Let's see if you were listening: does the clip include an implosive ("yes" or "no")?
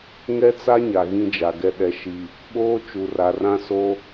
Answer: yes